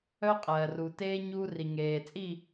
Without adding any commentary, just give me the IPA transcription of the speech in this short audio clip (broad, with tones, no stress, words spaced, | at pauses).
œ˦qʼɜː˨ru˨teː˦ ɲuː˦ri˨ŋeː˨t͡sʼi˦˨